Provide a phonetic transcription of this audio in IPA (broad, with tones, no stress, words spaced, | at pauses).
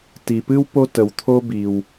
ti˩pɨ˥w po˥tə˩wt̪ʰo˥bi˩w